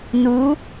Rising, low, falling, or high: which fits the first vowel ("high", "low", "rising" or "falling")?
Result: rising